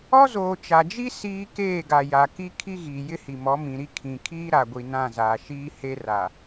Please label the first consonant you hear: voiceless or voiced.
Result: voiced